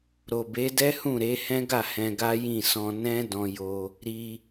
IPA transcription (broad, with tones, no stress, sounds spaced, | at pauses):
ɾ o˨ b e˨˦ d ɛ˦ h ũ˦˨ ɾ e˨˦ h ɛ̃˦ ɡ a˦˨ h ɛ̃˧ ɡ a˦ j ĩ˦˨ s ɔ̃˧ n ɛ̃˦ d ɔ̃˧ j o˧ | ɾ i˧